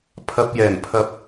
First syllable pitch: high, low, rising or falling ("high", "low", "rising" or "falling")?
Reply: low